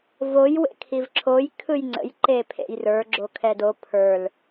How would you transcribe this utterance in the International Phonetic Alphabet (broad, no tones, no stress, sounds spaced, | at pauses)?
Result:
v o j w ḛ kʰ i v ǁʰ o j kʰ ɯ j ŋ͡ǀ ə̰ j ǃ e pʰ ḛ j r ə˞ ɡ͡ǁ o kʰ ɛ d o pʰ ə˞ l